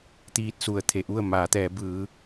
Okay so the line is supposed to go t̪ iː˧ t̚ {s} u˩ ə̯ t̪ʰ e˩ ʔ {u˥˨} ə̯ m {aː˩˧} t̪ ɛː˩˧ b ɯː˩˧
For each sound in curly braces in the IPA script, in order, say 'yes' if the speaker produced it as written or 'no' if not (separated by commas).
yes, yes, yes